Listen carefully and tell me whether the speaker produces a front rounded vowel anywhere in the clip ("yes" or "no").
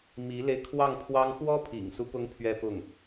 no